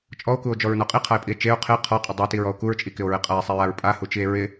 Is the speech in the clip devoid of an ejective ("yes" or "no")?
no